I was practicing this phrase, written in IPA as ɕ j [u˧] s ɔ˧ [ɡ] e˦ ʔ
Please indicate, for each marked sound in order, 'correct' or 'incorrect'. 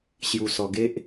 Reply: correct, correct

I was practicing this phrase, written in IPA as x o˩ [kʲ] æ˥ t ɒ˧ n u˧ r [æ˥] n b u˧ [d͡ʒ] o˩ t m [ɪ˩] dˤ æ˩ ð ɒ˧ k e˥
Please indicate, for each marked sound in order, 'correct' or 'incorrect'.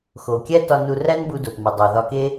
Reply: correct, correct, incorrect, incorrect

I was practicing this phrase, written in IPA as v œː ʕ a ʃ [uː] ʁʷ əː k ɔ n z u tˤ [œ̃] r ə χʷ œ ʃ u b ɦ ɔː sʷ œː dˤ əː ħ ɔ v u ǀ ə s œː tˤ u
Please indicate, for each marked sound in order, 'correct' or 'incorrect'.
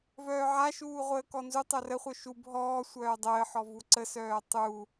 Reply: correct, incorrect

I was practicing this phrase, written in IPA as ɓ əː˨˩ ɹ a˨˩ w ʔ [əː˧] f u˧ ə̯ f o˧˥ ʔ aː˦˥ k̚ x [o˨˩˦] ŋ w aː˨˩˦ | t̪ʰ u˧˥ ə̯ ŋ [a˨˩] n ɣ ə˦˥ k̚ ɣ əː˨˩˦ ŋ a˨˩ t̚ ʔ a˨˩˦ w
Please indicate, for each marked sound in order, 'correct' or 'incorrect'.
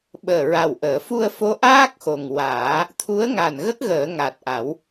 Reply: incorrect, incorrect, correct

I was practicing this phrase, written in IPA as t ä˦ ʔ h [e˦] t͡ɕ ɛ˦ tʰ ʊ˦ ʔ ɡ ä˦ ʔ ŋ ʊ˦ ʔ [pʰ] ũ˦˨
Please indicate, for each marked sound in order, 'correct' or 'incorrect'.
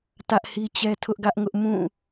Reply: incorrect, incorrect

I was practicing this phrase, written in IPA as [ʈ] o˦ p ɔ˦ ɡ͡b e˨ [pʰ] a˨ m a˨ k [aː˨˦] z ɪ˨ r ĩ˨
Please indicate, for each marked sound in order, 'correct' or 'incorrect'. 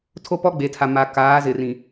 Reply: incorrect, incorrect, correct

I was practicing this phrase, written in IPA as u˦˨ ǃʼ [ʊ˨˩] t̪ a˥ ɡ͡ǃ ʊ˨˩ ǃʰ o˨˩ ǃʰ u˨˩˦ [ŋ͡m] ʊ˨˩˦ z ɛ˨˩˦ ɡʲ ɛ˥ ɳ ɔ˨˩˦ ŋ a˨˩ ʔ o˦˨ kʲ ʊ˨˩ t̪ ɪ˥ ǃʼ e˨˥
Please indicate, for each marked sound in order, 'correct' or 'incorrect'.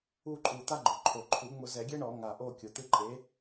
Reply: incorrect, correct

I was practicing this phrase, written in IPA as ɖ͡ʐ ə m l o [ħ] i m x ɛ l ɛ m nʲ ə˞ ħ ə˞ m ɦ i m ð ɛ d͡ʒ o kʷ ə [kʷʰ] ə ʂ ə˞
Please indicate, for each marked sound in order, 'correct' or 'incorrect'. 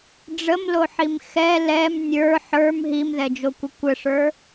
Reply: correct, incorrect

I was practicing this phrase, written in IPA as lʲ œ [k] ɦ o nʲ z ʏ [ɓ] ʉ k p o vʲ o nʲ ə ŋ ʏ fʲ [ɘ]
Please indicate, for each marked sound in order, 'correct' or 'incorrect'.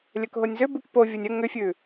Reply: correct, incorrect, incorrect

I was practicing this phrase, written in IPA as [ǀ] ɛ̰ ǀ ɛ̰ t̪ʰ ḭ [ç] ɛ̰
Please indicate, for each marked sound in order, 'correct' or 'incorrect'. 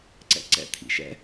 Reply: correct, incorrect

